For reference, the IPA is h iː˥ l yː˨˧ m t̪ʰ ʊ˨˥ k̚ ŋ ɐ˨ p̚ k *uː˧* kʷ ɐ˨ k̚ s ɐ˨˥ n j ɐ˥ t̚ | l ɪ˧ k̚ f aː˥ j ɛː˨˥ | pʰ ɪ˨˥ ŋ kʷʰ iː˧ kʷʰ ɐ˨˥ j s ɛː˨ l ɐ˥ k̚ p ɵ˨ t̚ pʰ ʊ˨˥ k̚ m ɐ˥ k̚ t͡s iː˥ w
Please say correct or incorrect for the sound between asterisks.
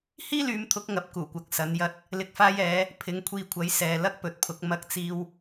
incorrect: uː˨˩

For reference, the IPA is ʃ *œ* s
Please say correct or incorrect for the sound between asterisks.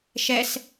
incorrect: ɛ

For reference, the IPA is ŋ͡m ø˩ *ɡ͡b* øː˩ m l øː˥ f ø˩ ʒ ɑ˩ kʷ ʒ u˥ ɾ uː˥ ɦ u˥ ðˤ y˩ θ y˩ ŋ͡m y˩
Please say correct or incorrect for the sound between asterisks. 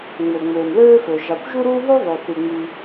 incorrect: ŋ͡m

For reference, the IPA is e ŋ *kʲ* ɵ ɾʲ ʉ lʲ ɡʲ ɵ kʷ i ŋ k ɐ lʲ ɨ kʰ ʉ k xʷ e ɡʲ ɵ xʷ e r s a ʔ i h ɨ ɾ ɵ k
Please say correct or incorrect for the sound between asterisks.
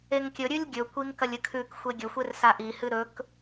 correct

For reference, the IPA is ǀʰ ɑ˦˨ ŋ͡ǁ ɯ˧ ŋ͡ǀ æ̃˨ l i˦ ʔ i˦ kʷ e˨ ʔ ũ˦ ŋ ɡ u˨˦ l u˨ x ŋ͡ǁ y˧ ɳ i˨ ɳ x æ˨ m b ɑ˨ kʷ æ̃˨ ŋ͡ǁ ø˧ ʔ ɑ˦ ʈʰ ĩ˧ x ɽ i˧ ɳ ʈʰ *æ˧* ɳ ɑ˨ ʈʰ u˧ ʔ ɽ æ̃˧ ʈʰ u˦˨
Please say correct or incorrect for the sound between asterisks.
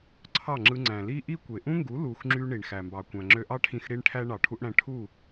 correct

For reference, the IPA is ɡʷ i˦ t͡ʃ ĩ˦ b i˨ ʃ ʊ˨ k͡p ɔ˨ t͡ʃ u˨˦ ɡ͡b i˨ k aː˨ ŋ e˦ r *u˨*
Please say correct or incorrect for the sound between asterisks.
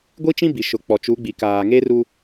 incorrect: u˦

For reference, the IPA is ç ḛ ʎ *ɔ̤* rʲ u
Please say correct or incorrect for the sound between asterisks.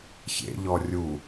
incorrect: ɔ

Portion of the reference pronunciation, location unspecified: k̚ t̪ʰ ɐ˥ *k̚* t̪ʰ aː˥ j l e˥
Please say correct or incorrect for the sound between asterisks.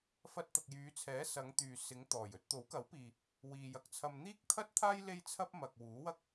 incorrect: t̚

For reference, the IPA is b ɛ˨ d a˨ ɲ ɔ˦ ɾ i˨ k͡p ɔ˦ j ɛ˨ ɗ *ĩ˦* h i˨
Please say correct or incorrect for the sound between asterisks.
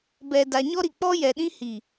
correct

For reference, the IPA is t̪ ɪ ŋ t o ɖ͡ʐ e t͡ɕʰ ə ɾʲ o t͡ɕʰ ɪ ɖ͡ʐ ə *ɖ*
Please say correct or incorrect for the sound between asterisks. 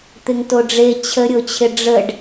correct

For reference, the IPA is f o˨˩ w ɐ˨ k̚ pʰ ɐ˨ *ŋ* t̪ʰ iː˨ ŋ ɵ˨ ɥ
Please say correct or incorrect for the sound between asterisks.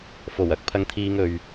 correct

